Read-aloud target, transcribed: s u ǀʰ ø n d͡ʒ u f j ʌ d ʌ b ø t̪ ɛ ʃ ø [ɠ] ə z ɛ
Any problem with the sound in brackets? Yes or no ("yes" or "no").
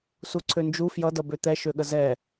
no